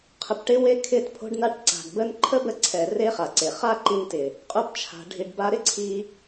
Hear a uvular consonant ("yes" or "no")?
yes